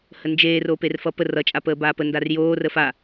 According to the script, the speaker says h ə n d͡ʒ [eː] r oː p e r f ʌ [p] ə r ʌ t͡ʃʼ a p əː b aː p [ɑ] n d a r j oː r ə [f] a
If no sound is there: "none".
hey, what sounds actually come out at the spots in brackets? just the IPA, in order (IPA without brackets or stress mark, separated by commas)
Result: eː, p, ə, f